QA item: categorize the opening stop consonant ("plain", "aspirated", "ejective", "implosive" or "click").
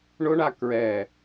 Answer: plain